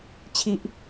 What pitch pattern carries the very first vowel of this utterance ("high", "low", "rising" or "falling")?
low